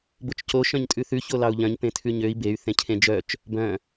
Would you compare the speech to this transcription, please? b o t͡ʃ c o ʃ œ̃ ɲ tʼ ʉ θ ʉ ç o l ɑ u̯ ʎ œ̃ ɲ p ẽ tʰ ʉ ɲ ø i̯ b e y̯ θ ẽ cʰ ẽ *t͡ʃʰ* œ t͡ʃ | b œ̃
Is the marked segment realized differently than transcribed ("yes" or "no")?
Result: yes